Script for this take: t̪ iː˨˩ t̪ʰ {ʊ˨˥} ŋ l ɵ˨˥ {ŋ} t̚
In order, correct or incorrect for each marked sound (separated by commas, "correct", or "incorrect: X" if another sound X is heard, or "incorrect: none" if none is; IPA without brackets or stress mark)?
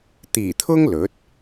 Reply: incorrect: ʊ˥, incorrect: none